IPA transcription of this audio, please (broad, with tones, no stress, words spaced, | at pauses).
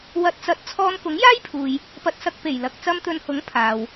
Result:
wɐ˨t̚t͡sɐ˨˥t̚ t͡sʰɔː˧nkʊ˨˥ŋjaː˥jpʰuː˨j | pɐ˧t̚sɐ˧k̚pe˨˩j lɐ˧k̚ t͡sɐ˧mt̪ɵ˨nhʊ˨˥ŋ pʰaː˨w